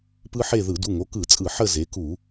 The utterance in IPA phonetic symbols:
p ɯ˦ ħ e˦˨ ð ɯ˧˩˧ d u˩˧˩ ŋ o˩˧˩ k ɯ˧˩˧ t͡sʼ ɯ˧˩˧ ħ ə˦˨ z e˩˧ k u˧˩˧

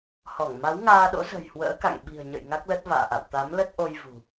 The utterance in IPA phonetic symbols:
h ɔ˧˩ ŋ m a˨˦ w ŋ aː˧ ɗ o̰˧˥ z ə̤˨˩ j h w ə̰ː˧˥ k a̰˧˨ ŋ ɓ i̤˨˩ ə̯ ɲ ə̰˧˨ j ŋ a˦˥ k̚ l ə˦˥ t̚ v a̰ː˧˨ ʔ a̰˧˨ w t̪ a˨˦ m l ə˦˥ t̚ ʔ o˧ j v ṳ˨˩

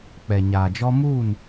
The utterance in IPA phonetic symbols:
k͡p ɛ˨ ɲ aː˨ d͡ʒ ɔ˦ m uː˦˨ n

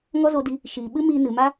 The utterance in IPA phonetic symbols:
ŋ ɔ˦ z o˧ d i˧ | ʃ iː˨ ɓ ɨ˦ m iː˧ n ɨ˨ m a˦

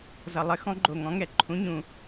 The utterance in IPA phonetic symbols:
z ʌ˨˩ lˠ ɘ˨˥ x ɔ̃˨˥ ɡ͡ǃ o˨˩ ŋ ɔ̃˨˥ ŋ ɛ˨˩ ǃʰ ũ˨˥ ɲ ũ˨˩

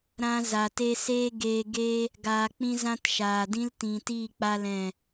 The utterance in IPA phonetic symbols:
ɾ ã˧ z a˨ t e˧ s eː˦ ɡ eː˧ ɡ e˦ | ɡ aː˧ k͡p ĩ˦ z ã˦ t ʃ aː˨ d ĩ˦ l t ĩ˨ t iː˦˨ k͡p a˦ l ɛ̃˦˨

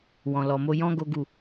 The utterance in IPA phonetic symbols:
w ɔ̃˨ l ɔ˨ m o˧ j ɔ̃˦ ɡ o˦ ɡ u˦˨

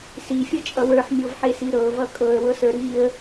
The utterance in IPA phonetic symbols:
s i fʲ ɤ t͡ʃʼ ʌ w ə˞ ħ mʲ ɤ v ħ e s i ɾ ɤ v ʌ kʼ ɤ ə̯ w ɤ s ə˞ ɾ i ə̯

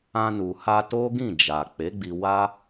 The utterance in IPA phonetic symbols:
ã˧ n u˨ h a˧ t o˦ ɡ ĩ˦˨ d͡ʒ a˨ k͡p e˨˦ ɡ͡b i˧ w a˦

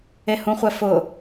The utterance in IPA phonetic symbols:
e h ũ χʷ ɛ f ʊ

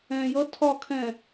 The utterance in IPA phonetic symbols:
ɛ̃ j ʌ tʰ ɒ kʰ ɛ̃

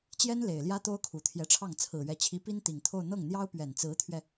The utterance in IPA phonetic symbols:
t͡ɕ j ɛ˥ n l e˨˩ ɪ̯ l j ä˥ t̪ o˥ ʊ̯ kʰ u˨˩ t̪ʰ j ɛ˧˥ ʈ͡ʂʰ ɑ˥˩ ŋ t͡sʰ ɹ̩˨˩ ɥ ɛ˧˥ t͡ɕʰ i˧˥ p i˥ n t̪ i˨˩ ŋ t̪ʰ o˥˧ ʊ̯ n̪ ɤ˥˩ ŋ n̪ j ɑ˥ ʊ̯ p ɥ ɛ˨˩ n t͡s ɹ̩˧˥ t̪ʰ ɥ ɛ˧

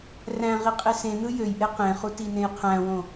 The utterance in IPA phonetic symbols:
r æ̃ ʁ i qʼ e s ẽ n ɯ j ø j ʔ e q ẽ χ u t i n ẽ j qʰ æ̃ w õ

